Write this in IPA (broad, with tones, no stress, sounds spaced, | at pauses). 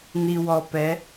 n i˨ w ɔ˨ p ɛ˨˦